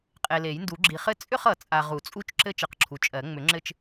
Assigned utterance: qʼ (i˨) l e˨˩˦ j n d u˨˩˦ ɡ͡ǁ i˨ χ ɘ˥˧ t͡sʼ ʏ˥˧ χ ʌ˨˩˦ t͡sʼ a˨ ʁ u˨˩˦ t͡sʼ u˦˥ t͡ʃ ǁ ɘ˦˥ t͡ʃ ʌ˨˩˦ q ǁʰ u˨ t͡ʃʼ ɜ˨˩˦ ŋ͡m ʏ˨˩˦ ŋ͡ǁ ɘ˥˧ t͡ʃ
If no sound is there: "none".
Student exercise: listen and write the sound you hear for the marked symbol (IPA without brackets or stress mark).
e˨